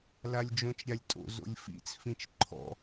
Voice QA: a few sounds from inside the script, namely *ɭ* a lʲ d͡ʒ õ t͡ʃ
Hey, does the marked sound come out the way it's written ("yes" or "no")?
no